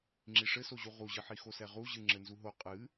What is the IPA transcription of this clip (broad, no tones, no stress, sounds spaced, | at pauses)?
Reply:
ŋ͡ǁ i ʂ ɘ s o ʑ u ʁ u ʑ ɨ ħ i x o s ɛ ʁ u ʑ ɨ ŋ͡ǁ ɘ n z u ɦ o qʼ ɨ